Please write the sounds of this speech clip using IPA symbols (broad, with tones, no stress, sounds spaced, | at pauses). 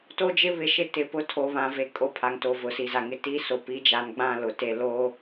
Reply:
t o˦ d͡ʒ ɪ˦ β ɪ˨ ʃ ɪ˦ t ɪ˨ p ʊ˦ tʰ o˨ β ã˨ v e˨ kʼ o˦ pʰ a˨ ŋ t o˨ v ʊ˨ s i˨ z a˨ ŋ ɪ˦ t i˦ s o˨ p i˨˦ d͡ʒ a˨˦ n ɡ͡b ã˦˨ l ʊ˨ t e˦ l o˦